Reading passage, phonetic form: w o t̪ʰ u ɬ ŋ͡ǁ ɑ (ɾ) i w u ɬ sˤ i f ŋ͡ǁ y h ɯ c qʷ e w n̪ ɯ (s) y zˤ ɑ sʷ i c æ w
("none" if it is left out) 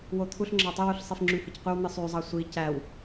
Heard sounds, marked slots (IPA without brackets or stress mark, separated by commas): tˤ, sˤ